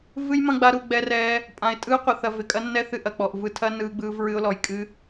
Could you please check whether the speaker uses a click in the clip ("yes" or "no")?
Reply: no